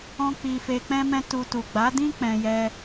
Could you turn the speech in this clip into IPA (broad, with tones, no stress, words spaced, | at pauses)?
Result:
ɔ̃˦k͡pi˧ fe˧k͡pɛ̃˦mɛ̃˦ tu˧tu˨ ɡ͡ba˨˦dĩ˦ k͡pɛ̃˧jɛ˧